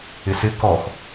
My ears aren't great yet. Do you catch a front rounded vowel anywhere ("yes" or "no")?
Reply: no